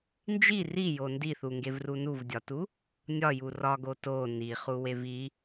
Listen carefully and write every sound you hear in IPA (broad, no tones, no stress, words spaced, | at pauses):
nd͡ʒi rijo ndiθuŋɡevru nuvdʲɒtu | nʲɒju rɒɡo to niχuwev i